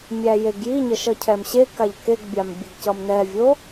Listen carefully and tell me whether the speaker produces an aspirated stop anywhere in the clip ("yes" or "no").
yes